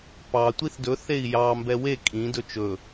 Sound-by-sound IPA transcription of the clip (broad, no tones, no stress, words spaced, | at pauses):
pɑ tʷiθdɵθ ei̯jɑ mbɛwe kʼĩ dɵt͡ʃɵ